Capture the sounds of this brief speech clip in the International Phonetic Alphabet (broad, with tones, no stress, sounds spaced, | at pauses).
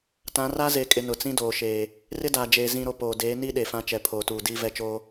t ã˨˦ r a˦ z e˨ kʼ ɪ˨ n ʊ˨ t͡s ĩ˦ d oː˨ ʃ eː˨ | r ɪ˦ d aː˨ d͡ʒ eː˨ z ĩ˨ ɾ o˨ p oː˨ d eː˨˦ n i˦ ɗ e˨ f ã˦ t͡ʃ ɛ˨ pʰ oː˨ t uː˨ d iː˦ v ɛ˦ t͡ʃ oː˦